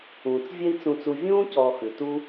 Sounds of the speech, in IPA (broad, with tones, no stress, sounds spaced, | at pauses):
ũː˩ t͡s vʲ ɛ˥ i̯ t͡s ũ˧ t͡s u˧ vʲ ũː˥ c ɔː˧ x ʉ˩ t u˥